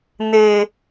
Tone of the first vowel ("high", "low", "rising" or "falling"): low